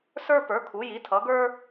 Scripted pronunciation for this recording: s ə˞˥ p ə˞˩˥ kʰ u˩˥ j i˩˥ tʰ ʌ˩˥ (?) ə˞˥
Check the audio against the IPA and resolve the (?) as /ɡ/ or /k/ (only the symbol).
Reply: ɡ